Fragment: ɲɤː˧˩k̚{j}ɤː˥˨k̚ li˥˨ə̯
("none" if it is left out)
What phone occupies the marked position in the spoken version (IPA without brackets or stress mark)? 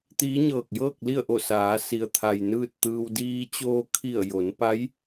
j